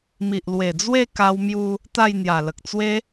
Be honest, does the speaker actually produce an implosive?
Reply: no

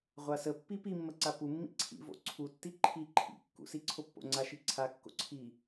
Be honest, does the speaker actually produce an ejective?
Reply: no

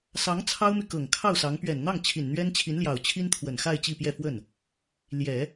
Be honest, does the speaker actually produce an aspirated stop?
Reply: yes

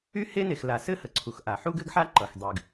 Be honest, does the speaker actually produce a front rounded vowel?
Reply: yes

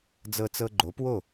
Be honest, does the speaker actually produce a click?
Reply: yes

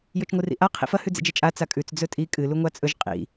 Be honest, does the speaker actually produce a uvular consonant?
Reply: yes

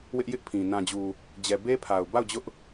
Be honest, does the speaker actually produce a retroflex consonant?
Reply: no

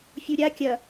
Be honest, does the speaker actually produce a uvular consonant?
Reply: no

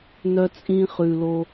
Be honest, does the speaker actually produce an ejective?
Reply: yes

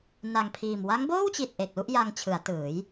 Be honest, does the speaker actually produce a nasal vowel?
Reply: no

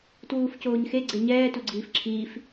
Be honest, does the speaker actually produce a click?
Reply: yes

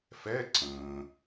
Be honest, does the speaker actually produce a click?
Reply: yes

